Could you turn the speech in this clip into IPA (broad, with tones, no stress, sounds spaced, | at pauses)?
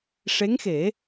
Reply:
ʂ e˧˥ ŋ x e˨˩˦